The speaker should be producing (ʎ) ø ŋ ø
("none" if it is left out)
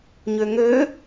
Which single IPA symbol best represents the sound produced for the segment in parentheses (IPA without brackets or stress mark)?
ɲ